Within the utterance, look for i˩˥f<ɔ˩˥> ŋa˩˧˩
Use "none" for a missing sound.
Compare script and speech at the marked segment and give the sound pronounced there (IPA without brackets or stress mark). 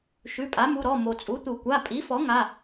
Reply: ɔ˩˥